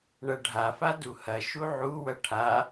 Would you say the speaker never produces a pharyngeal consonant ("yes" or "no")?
no